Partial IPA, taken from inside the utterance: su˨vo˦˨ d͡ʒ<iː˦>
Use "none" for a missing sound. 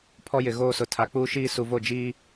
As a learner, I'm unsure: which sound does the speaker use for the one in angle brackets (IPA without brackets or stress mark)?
iː˦